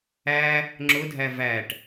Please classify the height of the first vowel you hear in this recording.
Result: low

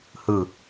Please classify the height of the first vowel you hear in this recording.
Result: high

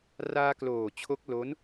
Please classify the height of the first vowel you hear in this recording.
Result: low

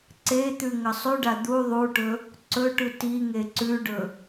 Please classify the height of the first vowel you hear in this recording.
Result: mid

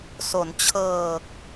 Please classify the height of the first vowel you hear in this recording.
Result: mid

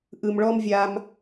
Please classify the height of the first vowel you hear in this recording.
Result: high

